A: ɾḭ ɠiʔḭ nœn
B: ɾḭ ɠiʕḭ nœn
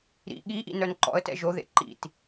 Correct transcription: A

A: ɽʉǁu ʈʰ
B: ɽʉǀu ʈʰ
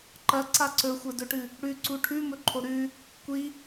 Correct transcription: B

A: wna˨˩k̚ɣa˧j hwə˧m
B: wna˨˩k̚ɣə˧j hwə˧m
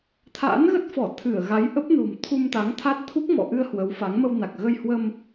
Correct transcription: B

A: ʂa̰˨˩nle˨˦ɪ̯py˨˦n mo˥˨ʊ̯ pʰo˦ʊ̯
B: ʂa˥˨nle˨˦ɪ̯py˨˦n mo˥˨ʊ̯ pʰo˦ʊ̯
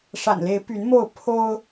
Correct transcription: A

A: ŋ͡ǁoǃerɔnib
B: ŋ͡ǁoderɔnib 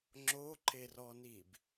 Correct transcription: A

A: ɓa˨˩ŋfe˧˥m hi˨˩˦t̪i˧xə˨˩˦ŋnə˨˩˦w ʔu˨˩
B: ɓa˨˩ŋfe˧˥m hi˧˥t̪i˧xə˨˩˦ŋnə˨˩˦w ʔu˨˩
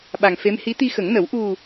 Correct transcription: B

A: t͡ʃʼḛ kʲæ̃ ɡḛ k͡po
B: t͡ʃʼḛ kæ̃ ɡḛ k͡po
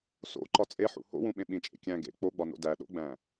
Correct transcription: A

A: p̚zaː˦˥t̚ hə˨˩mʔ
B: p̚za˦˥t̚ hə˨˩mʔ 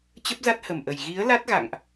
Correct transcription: B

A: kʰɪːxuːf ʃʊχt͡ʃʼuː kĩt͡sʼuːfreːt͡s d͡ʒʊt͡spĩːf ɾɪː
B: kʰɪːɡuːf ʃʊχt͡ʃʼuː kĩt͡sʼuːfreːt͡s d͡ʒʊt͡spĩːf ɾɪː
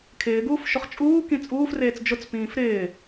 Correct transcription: B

